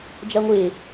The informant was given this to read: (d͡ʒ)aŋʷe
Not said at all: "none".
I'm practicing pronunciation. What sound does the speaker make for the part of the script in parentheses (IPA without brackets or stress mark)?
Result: d͡ʒ